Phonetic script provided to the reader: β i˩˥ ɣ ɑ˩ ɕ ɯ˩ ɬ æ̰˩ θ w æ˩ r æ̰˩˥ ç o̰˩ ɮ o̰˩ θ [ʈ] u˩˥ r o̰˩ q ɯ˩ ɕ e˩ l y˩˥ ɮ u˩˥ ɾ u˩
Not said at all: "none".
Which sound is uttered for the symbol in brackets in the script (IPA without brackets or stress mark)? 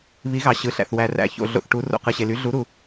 ʈ